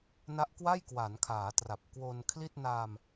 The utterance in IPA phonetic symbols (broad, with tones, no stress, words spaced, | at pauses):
na˦˥ʔkwa˥˩jkwa˩˦nkʰaː˩˦ tra˨˩p̚kwo˧nkʰli˥˩t̚ na˧m